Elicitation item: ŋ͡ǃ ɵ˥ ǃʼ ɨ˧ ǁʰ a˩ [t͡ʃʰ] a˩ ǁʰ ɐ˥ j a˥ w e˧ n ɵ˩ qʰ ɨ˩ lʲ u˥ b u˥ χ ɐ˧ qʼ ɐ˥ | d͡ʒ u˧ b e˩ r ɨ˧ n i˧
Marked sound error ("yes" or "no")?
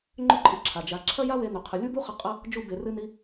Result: yes